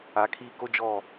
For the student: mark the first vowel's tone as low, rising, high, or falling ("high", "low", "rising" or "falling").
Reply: rising